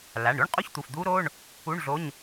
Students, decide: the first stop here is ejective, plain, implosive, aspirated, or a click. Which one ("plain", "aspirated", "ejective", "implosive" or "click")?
ejective